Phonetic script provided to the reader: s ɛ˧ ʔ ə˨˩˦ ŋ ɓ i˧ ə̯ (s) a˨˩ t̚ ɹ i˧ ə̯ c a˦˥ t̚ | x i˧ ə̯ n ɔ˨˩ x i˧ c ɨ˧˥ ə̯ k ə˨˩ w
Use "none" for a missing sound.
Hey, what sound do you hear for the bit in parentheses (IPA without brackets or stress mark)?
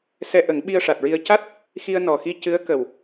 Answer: ʂ